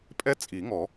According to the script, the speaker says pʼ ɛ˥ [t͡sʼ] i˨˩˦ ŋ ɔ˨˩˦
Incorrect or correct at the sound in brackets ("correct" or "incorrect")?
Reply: correct